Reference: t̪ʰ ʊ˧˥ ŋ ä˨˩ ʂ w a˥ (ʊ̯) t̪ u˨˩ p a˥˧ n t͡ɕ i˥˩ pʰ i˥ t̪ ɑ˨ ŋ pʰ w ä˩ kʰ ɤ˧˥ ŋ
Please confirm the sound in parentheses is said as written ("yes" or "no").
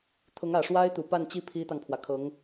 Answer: no